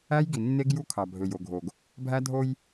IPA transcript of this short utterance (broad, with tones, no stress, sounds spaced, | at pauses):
æ˦ j ɡ i˨ nː e˦ ɡ j u˦ kʰ ɑ˨ bʱ ø˨ j o˨ ɡʱ o˨ ɡ | bʱ æ˦ dʱ o˦ j